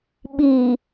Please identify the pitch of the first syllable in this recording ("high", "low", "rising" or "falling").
low